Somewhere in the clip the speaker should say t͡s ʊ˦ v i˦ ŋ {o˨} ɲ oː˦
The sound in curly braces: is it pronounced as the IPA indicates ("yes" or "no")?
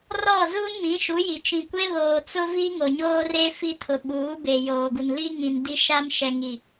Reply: yes